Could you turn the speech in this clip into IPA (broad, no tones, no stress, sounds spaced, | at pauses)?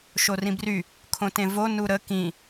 ʃ o r ĩ b r y | kʰ õ t ẽ v o n u ɾ ə k ĩ